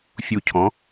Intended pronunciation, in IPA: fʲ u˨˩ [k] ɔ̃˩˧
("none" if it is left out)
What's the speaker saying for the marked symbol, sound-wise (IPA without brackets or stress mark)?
cʰ